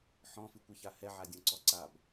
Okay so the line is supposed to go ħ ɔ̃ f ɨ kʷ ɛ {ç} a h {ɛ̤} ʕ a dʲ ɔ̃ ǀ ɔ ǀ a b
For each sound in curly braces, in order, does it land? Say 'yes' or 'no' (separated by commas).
yes, no